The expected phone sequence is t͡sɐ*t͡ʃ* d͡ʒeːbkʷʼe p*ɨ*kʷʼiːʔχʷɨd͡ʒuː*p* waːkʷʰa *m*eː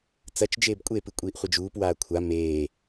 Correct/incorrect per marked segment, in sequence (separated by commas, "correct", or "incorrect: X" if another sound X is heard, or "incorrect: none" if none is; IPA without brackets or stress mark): correct, correct, correct, correct